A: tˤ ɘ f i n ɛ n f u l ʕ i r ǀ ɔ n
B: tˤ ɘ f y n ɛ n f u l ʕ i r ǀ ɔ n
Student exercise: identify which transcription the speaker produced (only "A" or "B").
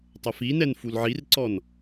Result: A